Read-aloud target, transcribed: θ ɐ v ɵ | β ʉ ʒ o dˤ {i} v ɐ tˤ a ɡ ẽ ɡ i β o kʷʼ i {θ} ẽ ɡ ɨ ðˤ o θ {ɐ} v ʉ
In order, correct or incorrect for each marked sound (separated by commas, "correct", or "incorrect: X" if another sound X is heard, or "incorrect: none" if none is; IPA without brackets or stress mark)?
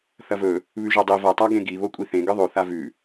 correct, correct, incorrect: a